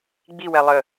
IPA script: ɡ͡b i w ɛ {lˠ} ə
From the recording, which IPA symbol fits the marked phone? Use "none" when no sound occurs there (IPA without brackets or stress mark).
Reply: lˠ